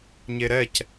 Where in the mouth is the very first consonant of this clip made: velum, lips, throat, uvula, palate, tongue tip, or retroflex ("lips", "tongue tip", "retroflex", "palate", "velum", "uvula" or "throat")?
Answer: palate